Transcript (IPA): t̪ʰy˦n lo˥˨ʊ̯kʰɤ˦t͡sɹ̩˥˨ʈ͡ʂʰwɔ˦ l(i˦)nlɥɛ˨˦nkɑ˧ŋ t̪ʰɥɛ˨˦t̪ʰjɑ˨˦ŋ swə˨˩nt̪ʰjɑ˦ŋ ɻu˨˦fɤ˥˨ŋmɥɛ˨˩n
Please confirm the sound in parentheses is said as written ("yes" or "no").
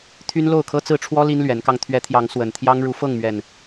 yes